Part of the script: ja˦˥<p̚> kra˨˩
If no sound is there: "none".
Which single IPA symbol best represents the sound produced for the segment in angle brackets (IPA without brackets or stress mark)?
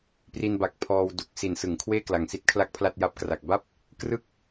p̚